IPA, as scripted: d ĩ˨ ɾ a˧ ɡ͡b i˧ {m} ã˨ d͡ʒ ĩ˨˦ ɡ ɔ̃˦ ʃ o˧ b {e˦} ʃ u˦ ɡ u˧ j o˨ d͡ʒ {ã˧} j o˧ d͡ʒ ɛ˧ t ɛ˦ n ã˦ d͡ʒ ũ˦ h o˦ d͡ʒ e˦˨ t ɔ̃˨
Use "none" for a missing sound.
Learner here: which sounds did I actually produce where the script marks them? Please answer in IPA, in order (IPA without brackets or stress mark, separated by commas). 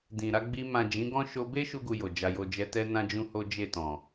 m, e˦, a˧